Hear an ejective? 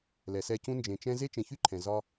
no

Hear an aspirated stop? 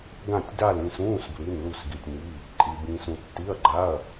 no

